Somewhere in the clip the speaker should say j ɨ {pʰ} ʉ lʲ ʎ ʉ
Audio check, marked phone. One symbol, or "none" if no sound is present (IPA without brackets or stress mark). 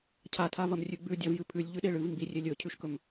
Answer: pʰ